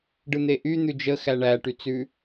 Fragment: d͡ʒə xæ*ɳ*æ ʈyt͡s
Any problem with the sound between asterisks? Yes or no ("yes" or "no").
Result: no